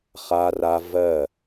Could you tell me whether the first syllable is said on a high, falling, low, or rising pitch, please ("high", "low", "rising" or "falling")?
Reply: high